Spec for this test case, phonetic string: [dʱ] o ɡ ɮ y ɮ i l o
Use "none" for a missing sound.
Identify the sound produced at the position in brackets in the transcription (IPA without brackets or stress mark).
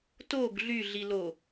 t